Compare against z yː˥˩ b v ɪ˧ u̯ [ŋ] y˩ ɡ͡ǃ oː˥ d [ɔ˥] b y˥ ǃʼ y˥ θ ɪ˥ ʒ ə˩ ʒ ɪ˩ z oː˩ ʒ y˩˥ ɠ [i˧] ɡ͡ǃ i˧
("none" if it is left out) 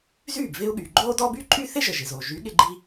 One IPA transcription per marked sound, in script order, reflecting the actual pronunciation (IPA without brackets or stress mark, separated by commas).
ɠ, ɔ˥, ɪ˧